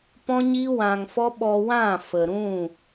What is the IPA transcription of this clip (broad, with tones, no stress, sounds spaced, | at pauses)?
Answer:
p ɔ̃˦ ɲ i˦ w ã˧ ŋ f ɔ˦ ɓ ɔ˧ w ã˦˨ f ə˨ ɾ ũ˦˨